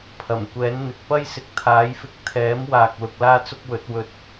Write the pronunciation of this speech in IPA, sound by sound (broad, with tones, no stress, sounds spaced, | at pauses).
pʰ ɐ˨˩ m kʷ ɛː˨˥ n n̪ ɪ˨ k̚ p ɐ˥ j s ɪ˨ k̚ t̪ʰ aː˨˥ j f ɪ˧ k̚ t̪ʰ ɛː˨˥ m w aː˨ k̚ l ʊ˧ k̚ l aː˥ t͡s ʊ˥ k̚ w ɵ˨˥ t̚ w ɵ˨ t̚